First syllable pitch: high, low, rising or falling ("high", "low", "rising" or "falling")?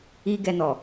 high